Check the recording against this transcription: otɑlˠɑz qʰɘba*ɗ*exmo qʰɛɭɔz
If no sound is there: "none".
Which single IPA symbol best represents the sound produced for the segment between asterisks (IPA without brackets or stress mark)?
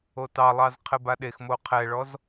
ɗ